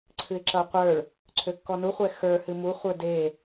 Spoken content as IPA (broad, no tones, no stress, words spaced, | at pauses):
ǀʰɨɪ̯ǁʌʊ̯qʷə˞ɭ | ǀʰøkːɔnuχʷɛ xə˞hɨ muχʷə˞ de